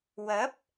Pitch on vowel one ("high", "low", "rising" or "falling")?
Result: rising